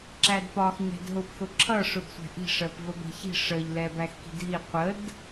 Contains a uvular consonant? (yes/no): yes